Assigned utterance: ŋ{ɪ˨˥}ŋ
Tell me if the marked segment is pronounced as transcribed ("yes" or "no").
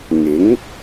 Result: yes